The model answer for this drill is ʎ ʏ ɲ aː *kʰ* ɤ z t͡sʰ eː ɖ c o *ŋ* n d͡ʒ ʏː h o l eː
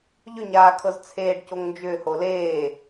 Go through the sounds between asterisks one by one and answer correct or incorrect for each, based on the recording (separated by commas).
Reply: correct, correct